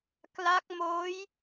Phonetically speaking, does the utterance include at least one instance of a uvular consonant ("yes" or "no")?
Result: no